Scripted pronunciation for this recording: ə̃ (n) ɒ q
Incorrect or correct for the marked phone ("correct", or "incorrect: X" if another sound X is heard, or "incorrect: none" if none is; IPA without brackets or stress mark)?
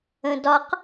incorrect: d